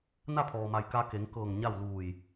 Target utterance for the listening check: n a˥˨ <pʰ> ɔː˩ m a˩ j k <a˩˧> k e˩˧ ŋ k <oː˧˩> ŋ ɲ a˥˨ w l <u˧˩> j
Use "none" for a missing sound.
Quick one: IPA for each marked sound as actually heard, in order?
pʰ, a˧, ɤː˧˩, uː˧˩

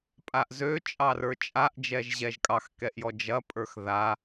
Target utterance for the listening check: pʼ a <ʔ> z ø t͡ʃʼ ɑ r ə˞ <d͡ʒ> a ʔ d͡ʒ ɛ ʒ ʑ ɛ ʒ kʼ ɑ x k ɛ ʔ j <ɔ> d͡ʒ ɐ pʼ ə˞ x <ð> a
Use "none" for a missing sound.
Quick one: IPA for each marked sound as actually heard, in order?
ʔ, t͡ʃʼ, ɔ, ð

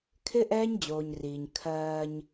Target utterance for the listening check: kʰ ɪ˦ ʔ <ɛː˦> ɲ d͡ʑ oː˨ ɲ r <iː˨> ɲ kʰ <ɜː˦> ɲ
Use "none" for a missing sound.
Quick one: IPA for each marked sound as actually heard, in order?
ɛː˦, iː˨, ɜː˦

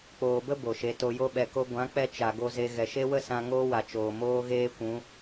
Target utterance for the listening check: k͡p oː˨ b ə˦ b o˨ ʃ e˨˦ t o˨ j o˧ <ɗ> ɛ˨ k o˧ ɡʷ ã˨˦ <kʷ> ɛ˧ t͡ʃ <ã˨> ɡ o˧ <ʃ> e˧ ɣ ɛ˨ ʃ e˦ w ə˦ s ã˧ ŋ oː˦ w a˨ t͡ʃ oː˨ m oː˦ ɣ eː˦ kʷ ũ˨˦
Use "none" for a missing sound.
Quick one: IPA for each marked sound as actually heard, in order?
ɓ, k͡p, a˨, z

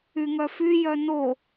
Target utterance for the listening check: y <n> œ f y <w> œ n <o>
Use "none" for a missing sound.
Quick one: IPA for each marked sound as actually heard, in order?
ŋ, j, o

